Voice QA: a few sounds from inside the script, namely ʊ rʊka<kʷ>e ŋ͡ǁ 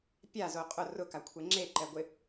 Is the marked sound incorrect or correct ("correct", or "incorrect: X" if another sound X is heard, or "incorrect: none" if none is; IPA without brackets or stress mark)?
incorrect: kʷʰ